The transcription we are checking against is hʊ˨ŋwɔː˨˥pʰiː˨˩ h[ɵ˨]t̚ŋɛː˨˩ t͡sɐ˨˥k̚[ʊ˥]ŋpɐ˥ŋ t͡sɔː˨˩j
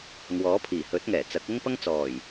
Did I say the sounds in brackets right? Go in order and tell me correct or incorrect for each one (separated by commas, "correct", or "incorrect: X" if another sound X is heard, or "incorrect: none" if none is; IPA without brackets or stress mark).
incorrect: ɵ˨˥, correct